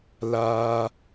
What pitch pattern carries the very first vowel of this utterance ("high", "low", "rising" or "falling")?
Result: high